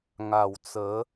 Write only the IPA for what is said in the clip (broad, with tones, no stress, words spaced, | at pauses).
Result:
ŋa˨˩w t͡sə˨˦